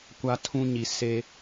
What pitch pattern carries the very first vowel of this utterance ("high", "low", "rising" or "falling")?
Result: high